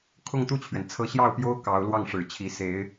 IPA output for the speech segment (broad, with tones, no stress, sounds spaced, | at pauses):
kʰ ʊ˥˧ ŋ t̪ u˥˩ t͡ɕʰ ɥ ɛ˩ n t͡sʰ ɤ˧˥ ɕ j ɑ˥˩ ʊ̯ p j o˥ ʊ̯ k ɑ˧˥ ʊ̯ l w ɑ˥˩ ŋ ʂ ɻ̩˨˩ t͡ɕʰ i˧˥ s e˧˥ ɪ̯